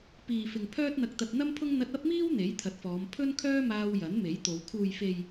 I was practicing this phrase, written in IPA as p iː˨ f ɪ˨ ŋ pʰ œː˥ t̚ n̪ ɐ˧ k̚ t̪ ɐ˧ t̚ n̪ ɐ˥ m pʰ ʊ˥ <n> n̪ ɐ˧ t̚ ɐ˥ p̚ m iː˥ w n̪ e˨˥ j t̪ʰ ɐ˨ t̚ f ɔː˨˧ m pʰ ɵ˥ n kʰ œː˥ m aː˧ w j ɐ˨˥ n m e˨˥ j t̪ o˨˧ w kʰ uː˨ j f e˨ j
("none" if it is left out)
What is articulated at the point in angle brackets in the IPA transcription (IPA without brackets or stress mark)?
ŋ